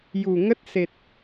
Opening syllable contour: low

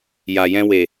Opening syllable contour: low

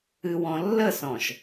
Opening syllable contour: low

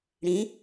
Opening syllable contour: rising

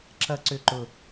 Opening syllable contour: high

